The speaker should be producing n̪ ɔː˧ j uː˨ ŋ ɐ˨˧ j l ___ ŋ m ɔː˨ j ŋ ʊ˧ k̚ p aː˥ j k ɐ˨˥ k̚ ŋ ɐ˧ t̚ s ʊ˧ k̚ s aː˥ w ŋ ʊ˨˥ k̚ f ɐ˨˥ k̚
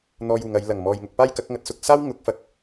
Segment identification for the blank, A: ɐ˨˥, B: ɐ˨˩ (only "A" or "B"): B